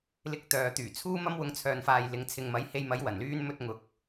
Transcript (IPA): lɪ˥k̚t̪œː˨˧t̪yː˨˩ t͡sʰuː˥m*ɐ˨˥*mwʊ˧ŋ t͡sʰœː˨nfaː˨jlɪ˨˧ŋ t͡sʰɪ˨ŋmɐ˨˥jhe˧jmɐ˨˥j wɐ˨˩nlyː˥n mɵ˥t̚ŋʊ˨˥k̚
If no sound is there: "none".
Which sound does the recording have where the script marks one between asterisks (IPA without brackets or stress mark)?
ɐ˥